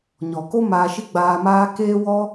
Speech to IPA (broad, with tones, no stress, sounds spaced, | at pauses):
ɲ ɔ˨ k o˦ m aː˧ ʃ i˦ ɡ͡b aː˧ m aː˦ k eː˦ w ɔ˦